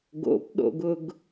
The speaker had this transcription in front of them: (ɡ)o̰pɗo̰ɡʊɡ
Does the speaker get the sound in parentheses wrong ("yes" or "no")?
no